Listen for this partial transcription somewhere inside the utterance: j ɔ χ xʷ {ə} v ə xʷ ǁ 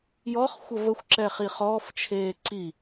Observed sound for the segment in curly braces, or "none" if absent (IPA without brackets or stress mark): ə